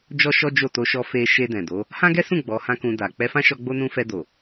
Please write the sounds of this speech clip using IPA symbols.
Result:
d͡ʒ ɔ˦ ʃ ɔ˦ d͡ʒ o˦˨ t o˧ ʃ ɔ˧ f e˧ ʃ e˧ d ɛ̃˨ d o˨˦ | h ã˦ ɡ ɛ˦ s ũ˦˨ ɡ͡b ɔ˨˦ h ã˦ k ũ˧ d a˨ k͡p ɛ˧ f ã˦ ʃ ɔ˧ ɡ͡b o˦ n ũ˦ f ɛ˧ d o˨

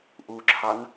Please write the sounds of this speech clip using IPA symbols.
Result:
ʔ u ǁʰ ɑ n

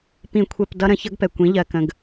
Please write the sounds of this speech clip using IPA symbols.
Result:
p ĩ˧ kʷʰ ɛ˧ p d ʌ˦ ɾ ə̃˧ ç ʌ˦ ɡ p ɛ˨ kʷ ĩ˨˦ ʎ ɜ˨ k ə̃˨ ɡ

